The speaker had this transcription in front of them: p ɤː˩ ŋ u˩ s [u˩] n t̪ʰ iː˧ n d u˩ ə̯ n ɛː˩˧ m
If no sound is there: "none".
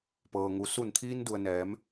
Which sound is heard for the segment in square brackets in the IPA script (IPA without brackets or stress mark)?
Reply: u˧˩